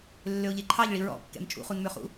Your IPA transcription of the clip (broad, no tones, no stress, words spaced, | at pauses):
lːøʊ̯ʎeǃʰɑʎ ɭiɹɔ̰kːɛ̰m t͡ʃʼṵχunmøχṵ